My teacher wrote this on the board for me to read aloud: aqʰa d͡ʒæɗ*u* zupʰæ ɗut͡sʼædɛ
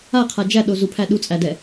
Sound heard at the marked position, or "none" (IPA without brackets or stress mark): o